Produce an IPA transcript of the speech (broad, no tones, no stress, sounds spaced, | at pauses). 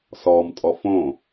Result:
s ɔ m tʼ ɔ f õ